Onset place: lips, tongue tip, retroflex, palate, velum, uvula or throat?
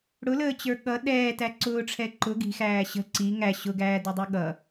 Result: retroflex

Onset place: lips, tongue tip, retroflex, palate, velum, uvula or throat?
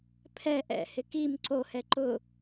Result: lips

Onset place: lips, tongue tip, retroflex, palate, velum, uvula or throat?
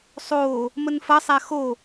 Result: tongue tip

